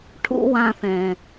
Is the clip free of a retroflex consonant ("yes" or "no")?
no